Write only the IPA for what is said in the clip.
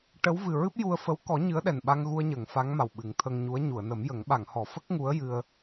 ʈ ə˧˥ w v ɨ˨˩ ɹ ɨ˦˥ p̚ j u˧ ə̯ f ə˧˥ w k ɔ˨˩˦ ɲ ɨ˧˥ ə̯ ɗ ɛ˨˩ n ɓ a˧ ŋ ɣ u˧ ə̯ ɲ ə˨˩˨ ŋ f a˧˥ ŋ m a˨˩ w ɓ ɨ˨˩˦ ŋ t̪ʰ əː˧ ŋ ɲ u˧˥ ə̯ ɲ u˨˩˨ ə̯ n ə˨˩˦ m j ə˨˩˦ ŋ ɓ a˨˩˨ ŋ h ɔ˨˩˨ f ə˦˥ k̚ ŋ u˧˥ ə̯ j ɨ˧ ə̯

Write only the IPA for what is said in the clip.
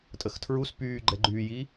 tʼ ə x tʰ ɹ u s p yː ɡ͡ǃ ɛ ɡ͡ǃ yː j i

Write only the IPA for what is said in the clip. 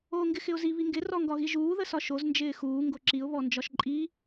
oː ŋ ɡ ɪ x ɪ ʊ̯ z i β i ŋ ɡ ɪ r ɔ ŋ ɡ ɒ ɣ i ʒ uː ð ə s ɒ ʃ o z n d͡ʒ ɪː x uː ŋ ɡ o ǁ i ʊ̯ β ɔ n d͡ʒ ɒ ʃ ǃʼ i

